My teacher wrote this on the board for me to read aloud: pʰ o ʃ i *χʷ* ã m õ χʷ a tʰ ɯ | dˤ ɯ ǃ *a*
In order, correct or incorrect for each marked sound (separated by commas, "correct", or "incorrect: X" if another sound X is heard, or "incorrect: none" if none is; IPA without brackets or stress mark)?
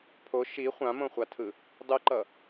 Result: correct, incorrect: ʌ